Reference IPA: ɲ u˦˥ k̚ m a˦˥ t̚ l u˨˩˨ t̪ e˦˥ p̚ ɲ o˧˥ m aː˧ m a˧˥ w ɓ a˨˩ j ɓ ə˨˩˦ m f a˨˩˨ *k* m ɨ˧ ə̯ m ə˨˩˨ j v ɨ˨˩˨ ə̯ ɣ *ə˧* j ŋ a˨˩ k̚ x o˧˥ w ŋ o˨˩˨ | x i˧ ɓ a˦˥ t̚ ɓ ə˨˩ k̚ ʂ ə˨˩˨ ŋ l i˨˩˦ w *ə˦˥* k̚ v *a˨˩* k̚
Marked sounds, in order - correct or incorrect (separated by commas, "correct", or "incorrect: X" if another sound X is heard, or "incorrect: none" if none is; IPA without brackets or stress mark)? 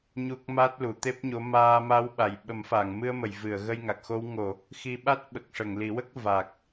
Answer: incorrect: ŋ, correct, correct, correct